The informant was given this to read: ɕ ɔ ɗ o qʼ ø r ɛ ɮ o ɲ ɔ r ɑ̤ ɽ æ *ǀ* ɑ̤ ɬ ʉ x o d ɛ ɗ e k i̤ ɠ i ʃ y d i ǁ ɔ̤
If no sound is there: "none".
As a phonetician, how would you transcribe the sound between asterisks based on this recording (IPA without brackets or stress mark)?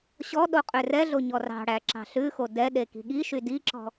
ǁ